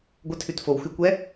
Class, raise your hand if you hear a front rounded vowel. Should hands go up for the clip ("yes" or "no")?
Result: no